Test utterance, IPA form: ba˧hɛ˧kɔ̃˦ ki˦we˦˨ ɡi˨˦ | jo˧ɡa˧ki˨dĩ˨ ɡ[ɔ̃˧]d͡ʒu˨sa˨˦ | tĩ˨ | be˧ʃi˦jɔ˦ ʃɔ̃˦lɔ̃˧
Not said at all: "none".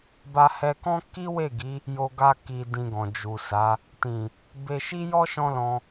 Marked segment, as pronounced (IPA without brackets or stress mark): ɔ̃˨